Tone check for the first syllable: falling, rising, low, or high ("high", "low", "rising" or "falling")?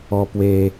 high